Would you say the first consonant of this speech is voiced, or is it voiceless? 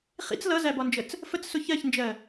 voiceless